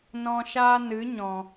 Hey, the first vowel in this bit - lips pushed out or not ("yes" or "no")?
yes